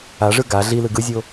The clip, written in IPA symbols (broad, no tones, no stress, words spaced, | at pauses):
aʐɯ ɡa ɮilɯ ɡɯzʲo